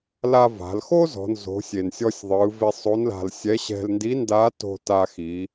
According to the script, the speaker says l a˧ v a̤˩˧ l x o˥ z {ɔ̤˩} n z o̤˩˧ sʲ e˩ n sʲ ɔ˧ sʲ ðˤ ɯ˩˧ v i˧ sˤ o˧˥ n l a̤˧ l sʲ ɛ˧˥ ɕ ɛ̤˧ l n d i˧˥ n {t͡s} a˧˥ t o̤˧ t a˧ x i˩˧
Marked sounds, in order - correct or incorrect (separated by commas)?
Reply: incorrect, incorrect